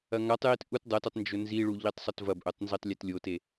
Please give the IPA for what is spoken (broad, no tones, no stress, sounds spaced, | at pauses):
ɐ ŋ a tˤ j i t ʔ u t dˤ ɐ t ɵ tˤ n d͡ʒ ɵ n z i ɭ u ʎ i tˤ sˤ ɵ t v ɐ b ʔ ɵ tˤ n z i tˤ lʲ e t lʲ o t e